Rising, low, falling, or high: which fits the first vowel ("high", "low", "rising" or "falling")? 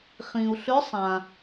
low